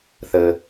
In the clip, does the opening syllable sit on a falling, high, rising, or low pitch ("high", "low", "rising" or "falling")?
low